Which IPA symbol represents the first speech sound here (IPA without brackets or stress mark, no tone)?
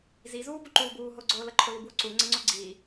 z